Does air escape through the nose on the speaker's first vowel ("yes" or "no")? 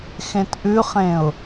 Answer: yes